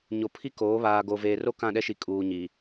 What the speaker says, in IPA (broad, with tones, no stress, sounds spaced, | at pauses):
ɲ o˨ pʰ i˦ k oː˨˦ β aː˨ ɡ o˨ v eː˨ r o˦ k ã˦˨ ɗ ɛ˦ ʃ i˨ kʼ uː˨ ɲ i˨